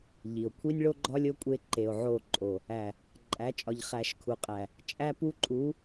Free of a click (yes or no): no